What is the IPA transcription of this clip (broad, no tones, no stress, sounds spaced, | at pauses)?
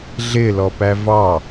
ɮ ɪ l ɔ p æ v ɑ